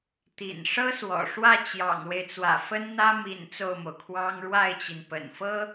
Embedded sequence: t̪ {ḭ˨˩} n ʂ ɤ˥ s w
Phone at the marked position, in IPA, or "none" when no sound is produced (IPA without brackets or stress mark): ḭ˨˩